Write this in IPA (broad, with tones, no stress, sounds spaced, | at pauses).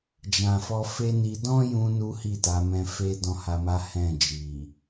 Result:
d͡ʒ ã˨ f ɔ˧ f e˦ n i˧ d ɔ̃˦ j ũ˧ n u˦ h i˦˨ t a˨˦ m ɛ̃˦ f e˦ d ɔ̃˦ h a˧ m a˦ h ɛ̃˦˨ d͡ʒ i˨